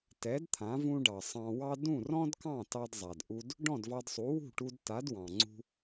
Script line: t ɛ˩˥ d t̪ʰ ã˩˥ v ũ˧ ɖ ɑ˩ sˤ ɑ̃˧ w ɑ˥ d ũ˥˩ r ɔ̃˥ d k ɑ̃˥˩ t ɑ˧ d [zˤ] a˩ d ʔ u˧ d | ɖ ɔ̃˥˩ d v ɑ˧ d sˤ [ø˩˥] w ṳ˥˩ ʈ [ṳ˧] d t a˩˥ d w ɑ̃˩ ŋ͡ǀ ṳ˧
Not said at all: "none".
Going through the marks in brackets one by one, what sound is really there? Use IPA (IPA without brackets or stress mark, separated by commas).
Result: zˤ, u˩˥, u˧